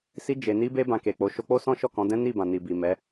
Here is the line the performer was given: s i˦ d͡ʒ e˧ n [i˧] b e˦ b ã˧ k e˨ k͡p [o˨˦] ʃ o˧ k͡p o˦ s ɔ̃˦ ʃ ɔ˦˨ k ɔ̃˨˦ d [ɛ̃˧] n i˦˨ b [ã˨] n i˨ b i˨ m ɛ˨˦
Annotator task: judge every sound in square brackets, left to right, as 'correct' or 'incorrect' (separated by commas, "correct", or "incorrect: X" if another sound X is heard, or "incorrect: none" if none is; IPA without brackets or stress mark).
incorrect: i˦, correct, incorrect: ɛ̃˦, correct